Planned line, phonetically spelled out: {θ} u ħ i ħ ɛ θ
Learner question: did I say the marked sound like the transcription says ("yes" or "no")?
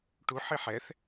no